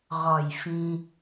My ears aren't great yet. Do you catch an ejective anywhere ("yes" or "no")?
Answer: no